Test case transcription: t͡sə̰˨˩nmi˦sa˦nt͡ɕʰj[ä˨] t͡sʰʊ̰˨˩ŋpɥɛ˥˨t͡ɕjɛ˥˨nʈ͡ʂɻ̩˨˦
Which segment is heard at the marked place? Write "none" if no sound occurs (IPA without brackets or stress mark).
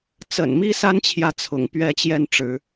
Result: ä˨